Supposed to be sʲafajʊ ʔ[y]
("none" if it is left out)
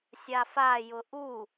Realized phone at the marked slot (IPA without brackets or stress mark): u